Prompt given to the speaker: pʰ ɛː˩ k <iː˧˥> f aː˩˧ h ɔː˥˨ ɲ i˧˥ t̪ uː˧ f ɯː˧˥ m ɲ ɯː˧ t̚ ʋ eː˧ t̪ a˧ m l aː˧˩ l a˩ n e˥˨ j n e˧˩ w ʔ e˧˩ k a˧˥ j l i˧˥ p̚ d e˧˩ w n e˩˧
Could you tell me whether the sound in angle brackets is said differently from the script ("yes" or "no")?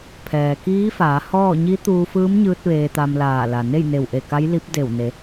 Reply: no